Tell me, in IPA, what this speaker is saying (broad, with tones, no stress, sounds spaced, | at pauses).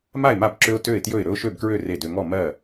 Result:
m a˥˩ ɪ̯ m a˥˩ b ǁ ø˦ ʊ̯ t ø˥˩ ɪ̯ t j ɵ˥˩ ɪ̯ ɾ ɵ˦ ʊ̯ ʃ ø˥˩ b k ɹ ø˥˩ r e˥˩ d ø˦ ŋ ɔ˥˩ m ɜ˥˩